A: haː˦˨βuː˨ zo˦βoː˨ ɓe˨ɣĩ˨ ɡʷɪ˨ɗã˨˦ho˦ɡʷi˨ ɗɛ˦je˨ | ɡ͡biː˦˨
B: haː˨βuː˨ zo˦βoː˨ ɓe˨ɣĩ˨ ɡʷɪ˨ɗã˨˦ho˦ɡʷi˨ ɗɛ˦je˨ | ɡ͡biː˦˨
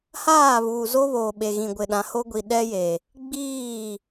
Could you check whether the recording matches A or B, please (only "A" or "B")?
A